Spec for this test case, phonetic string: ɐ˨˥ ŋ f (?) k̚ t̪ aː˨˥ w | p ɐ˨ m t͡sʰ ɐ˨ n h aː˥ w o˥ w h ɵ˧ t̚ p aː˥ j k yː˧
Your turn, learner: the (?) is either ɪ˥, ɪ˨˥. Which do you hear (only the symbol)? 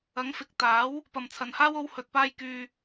ɪ˨˥